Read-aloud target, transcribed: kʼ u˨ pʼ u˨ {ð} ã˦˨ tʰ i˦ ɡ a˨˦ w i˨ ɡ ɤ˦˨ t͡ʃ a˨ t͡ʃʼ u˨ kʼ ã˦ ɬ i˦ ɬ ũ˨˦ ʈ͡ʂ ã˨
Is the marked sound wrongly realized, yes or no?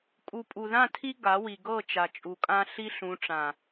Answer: no